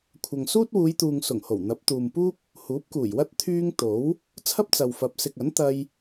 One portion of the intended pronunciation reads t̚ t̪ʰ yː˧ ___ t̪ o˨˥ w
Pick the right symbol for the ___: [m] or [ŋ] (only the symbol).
ŋ